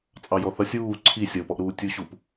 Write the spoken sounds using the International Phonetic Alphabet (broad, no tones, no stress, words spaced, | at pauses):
t͡sʼɑjɔθʌsʲ uː ǀʰi sʲʌʊ̯pɔʔɾuː tʲuɕup